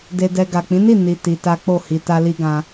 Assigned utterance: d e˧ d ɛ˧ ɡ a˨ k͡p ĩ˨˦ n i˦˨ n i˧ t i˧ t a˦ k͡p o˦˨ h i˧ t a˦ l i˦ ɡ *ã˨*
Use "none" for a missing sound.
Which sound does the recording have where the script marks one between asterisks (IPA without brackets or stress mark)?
ã˧